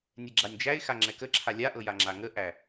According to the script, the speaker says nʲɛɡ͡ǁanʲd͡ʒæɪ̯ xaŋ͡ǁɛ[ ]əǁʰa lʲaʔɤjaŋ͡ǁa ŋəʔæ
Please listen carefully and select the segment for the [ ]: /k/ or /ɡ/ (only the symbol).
k